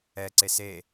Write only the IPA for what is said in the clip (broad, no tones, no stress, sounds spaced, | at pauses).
ɛ ǀ e s e